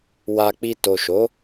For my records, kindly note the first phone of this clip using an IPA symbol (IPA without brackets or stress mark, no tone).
w